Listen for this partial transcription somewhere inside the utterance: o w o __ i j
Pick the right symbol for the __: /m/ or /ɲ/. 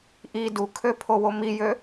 m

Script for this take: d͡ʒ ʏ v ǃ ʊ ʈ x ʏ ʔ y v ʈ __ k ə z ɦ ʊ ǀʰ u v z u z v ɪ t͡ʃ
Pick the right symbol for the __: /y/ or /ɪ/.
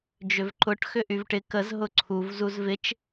ɪ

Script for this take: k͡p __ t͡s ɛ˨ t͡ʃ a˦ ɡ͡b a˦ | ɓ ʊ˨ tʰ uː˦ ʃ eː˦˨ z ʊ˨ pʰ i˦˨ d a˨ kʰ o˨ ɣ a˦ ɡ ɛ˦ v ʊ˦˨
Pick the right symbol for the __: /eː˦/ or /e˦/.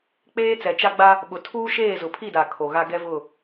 eː˦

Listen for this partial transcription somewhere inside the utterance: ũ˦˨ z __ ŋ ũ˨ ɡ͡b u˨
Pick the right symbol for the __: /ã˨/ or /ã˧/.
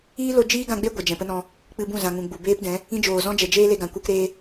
ã˨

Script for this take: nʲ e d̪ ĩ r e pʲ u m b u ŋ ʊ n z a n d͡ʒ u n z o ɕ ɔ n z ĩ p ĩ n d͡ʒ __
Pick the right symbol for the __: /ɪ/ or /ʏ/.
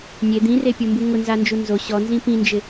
ɪ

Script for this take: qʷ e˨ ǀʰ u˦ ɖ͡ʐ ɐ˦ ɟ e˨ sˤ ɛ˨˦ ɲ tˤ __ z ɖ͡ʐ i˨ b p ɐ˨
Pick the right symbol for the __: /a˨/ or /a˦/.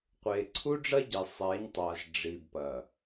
a˨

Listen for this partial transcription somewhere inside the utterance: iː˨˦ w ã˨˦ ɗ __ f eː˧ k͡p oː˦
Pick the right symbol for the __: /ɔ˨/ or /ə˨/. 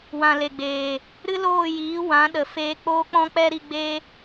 ə˨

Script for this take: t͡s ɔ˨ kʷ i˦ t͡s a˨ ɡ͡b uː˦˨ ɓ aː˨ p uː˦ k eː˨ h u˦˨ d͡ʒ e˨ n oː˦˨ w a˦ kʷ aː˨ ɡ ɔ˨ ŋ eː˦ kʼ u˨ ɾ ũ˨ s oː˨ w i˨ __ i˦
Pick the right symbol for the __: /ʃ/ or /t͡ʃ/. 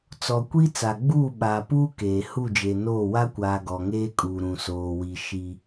ʃ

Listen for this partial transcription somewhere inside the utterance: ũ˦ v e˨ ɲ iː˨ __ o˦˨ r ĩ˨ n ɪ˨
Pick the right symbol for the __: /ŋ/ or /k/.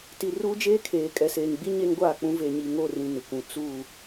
ŋ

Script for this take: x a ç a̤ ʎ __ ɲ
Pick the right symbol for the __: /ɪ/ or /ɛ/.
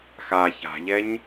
ɛ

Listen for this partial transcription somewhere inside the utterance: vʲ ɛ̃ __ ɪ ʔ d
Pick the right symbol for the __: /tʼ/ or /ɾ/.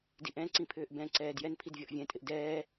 tʼ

